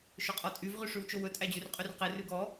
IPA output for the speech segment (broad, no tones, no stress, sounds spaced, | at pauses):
ʃ ɵ qʼ ɔ tʼ y v ʁ y ʂ ʉ w t͡ʃ o w ɵ tʼ æ d͡ʑ ʉ r qʼ y r q e r ʉ ɡ ɔ